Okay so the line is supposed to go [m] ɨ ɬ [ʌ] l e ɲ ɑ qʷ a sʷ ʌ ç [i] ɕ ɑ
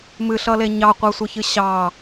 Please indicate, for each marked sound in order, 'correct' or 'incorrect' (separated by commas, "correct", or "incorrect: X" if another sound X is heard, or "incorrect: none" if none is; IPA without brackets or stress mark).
correct, correct, incorrect: ɨ